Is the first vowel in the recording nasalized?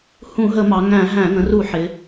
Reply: yes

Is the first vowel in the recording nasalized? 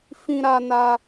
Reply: yes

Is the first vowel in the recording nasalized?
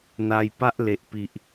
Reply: no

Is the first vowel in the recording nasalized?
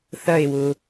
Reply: no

